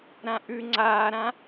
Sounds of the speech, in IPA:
ɾãʔʉ ŋ͡ǀaːɾã

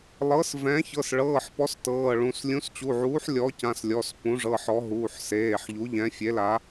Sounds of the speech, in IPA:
lˠɤ˨˥s vɛ̃˨˥ çɤ˩˧˩sɭɤː˩˧˩ħpɔ˨˥s tɤː˩˧˩ɭũ˩˧˩s lʲũ˨˥st͡ɕu˩˧˩ʕuː˨˥ħ lʲɔ˨˥cã˩˧˩s lʲɔ˩˧˩spũ˨˥ʐɤ˩˧˩ħɔ˨˥ ɦuː˩˧˩ħseː˩˧˩ħʎu˨˥ ʎɛ̃˨˥ fʲe˨˥la˨˥

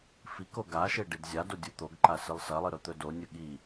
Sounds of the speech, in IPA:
fiko ɡaʃe ɖidzʲado dʲut̪oɡǃa sɨlˠsɐlˠɨ ɾɵt̪ɵdonʲɵ ɠi

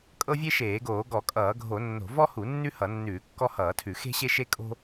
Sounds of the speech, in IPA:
kʼɤ˦vʲe˦ʃeː˧˩˧ɡoː˧˩˧ ɡɔ˧˩˧kʼʌː˧˩˧ɡʱo˧˩˧nːo̤˧˩˧ vɔ˦hu˧˩˧ nːʉ˦hʌ˧˩˧ nːʉː˧˩˧kːɔ˦hʌː˧˩˧tʰʉ˧˩˧ xe̤˦ɕe˦ʃe˦ kʼo̤˦

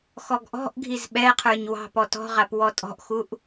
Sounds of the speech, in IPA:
xɔɡʔɔ̤ʔɡʱiz ɓɛqʰə˞ɲ wɑ̤pɔ tɔ̤ʁap wɔtʼɔ̤ʔxuʔ

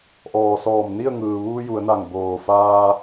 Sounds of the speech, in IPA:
ʔɔː˩sɔː˧˩m ni˥˨ə̯ŋɯː˩ ʋuː˧ ju˩˧ə̯na˧˩ŋ boː˩faː˧

